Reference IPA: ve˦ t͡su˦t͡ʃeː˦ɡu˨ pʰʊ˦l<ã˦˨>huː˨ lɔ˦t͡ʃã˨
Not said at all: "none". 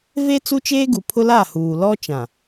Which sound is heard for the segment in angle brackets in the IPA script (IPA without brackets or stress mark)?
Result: a˦˨